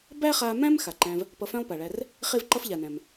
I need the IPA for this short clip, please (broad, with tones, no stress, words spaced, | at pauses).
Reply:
bæ˥χa˧mæ̃˥m xa˩ǃæ̃˧v | pʌ˧fæ̃˥lˠpa˩ɭæ˧r | χe˥vǃʌ˥fʎa˩næ̃˩m